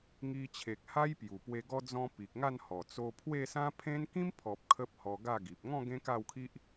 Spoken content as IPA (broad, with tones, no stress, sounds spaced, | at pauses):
ŋ i˧ t͡ɕʰ e˨ k̚ h a˦ j p j u˨˩ p w e˧ ɡ ɔ˧ d͡z ɔ̃˧ p i˨ k̚ ŋ a˥˧ n h ɔ˨˩ t͡s o˧ pʰ w e˥˧ s ã˦ pʰ ẽ˦ n k ĩ˦ m pʰ ɔ˨ p̚ kʰ ə˦ p̚ h ɔ˧ ɡ a˥˧ ɡ i˨ p̚ ŋ ɔ̃˥˧ ɡ ẽ˦ k a˥˧ w kʰ i˦ ʔ